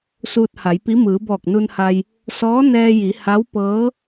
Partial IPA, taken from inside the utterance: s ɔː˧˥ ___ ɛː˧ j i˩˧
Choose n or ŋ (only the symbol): n